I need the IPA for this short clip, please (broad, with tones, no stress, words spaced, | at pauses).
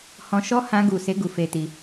hɔ̃˧ʃɔ˦ hã˧ɡu˨se˨˦ ɡu˧fe˧ti˧